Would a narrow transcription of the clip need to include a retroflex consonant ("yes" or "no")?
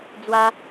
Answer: no